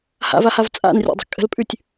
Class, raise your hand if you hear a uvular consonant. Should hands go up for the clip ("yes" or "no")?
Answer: no